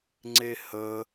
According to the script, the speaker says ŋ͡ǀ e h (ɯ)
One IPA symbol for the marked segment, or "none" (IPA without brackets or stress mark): ə